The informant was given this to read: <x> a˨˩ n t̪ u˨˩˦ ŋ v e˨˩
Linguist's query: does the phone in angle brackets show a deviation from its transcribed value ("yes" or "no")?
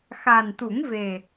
no